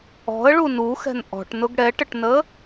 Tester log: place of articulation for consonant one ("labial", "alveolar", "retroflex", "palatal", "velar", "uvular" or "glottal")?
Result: retroflex